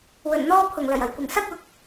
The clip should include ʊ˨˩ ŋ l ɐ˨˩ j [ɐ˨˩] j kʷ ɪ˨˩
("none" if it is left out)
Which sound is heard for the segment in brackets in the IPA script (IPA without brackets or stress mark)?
ɐ˨˩